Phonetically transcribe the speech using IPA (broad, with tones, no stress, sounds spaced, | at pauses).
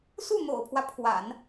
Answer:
s u˥˩ n̪ o̰˨˩ ʊ̯ pʰ w ä˦ pʰ w a̰˨˩˦ n